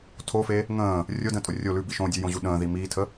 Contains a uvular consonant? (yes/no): no